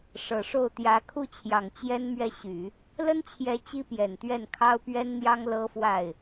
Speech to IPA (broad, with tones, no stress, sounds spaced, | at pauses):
ʂ ɤ˨˩ ʂ o˥˩ ʊ̯ t̪ j ä˧˥ kʰ u˥˩ t͡ɕʰ j ɑ˨˩ ŋ t͡ɕ j ɛ˥ n m ɥ ɛ˥˩ ɕ y˨˩˦ | l ə˥ n t͡ɕʰ j ɛ˧˥ t͡ɕ i˥ p j ɛ˨˩ n t̪ ɥ ɛ˥˩ n kʰ ɑ˥ ʊ̯ p ɥ ɛ˥ n n̪ j ɑ˥ ŋ l ɤ˥ f w a˥˩ ɪ̯